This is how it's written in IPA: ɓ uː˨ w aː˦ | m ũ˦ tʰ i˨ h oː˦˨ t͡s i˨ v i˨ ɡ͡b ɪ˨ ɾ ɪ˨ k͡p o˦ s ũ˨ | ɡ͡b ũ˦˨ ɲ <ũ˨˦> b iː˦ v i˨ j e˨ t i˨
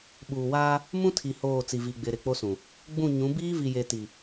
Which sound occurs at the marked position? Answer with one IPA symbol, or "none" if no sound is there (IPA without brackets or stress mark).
ũ˨˦